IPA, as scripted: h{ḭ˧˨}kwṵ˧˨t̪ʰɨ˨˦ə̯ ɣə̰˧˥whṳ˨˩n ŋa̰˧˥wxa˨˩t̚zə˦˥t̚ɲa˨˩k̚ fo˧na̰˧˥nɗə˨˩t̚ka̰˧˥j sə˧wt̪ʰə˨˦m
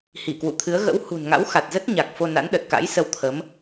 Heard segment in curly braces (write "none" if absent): i˧˩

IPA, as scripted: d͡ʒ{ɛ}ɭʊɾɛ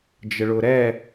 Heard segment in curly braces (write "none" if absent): ə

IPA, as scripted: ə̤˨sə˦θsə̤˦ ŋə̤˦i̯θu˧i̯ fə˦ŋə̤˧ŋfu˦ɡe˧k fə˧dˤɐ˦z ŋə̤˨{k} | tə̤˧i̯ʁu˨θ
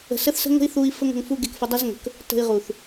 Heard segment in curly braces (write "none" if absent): k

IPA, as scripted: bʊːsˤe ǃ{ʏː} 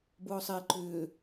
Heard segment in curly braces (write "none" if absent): ʏː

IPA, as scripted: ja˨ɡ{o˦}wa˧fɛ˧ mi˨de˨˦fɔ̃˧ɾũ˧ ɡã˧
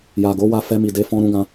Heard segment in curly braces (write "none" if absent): o˨˦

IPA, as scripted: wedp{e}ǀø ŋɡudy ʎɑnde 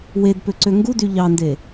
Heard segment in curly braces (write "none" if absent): ø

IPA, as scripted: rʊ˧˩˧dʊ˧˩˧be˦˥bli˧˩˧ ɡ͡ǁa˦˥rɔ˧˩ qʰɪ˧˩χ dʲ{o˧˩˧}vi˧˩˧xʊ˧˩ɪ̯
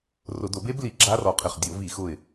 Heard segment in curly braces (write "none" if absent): o˧˩˧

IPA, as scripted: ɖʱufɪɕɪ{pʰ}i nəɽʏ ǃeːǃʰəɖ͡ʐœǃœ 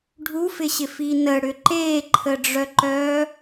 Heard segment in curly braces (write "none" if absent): f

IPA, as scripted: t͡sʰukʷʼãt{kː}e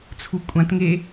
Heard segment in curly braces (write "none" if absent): ŋ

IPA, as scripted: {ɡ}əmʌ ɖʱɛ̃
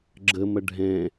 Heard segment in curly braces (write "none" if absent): ɡ͡ǁ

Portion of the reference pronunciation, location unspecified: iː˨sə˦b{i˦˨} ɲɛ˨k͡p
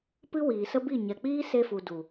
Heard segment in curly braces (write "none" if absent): i˦˨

